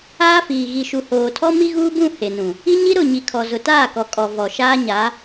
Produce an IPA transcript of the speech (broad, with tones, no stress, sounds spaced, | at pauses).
aː˦ f iː˨ ɣ i˨ ʃ u˨ h oː˨ tʰ ɔ˦ m i˦ ɣ uː˦ b ũ˦˨ h e˨ n ũ˨ | i˦ ɲ i˦ ɾ ʊ˦˨ ɲ i˨ kʰ ɔ˨ z ʊ˨ t aː˦˨ k ɔ˨ kʼ ɔ˨ v ɔ˨ ʃ aː˦ ɲ a˨˦